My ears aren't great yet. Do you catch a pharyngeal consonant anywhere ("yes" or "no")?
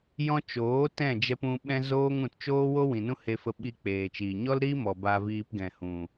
no